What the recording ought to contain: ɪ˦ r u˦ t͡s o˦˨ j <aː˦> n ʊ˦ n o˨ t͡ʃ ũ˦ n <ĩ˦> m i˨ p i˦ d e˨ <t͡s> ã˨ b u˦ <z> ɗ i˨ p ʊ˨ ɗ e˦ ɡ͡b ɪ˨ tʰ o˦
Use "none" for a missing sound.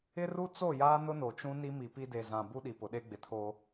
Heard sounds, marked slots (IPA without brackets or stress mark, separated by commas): aː˦, i˦, z, none